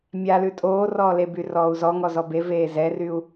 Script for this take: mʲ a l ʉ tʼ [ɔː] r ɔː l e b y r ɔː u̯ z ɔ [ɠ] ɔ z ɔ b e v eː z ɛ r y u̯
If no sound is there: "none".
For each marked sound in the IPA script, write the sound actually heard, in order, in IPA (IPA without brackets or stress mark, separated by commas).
oː, ŋ